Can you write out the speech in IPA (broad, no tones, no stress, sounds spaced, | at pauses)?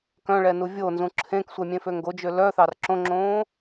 k œ̃ ɭ ɛ n u vʲ o n z ũ ǁʰ ẽ k sʷ ɛ mʲ ẽ f ø ŋ ɡ o d͡ʒ ø l œ θ ɑ r ǁ õ ŋ͡ǁ õː